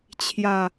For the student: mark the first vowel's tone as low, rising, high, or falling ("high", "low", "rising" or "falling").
low